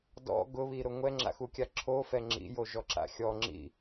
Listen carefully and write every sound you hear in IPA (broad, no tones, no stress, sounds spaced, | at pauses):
d ɔ̰ ɡ ʊ β i ɾ ʊ ŋʷ ɛ ŋ͡ǁ a̰ x u kʲ a ǁʰ o f ɛ ŋ͡ǁ ḭ j o ʒ ɔ ǁ a̰ xʲ ɔ ŋ͡ǁ ḭ